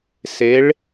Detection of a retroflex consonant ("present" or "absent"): present